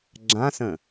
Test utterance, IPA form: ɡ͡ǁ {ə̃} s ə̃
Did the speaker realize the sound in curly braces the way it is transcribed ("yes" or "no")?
no